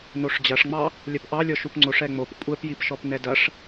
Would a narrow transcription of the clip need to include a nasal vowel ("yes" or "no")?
no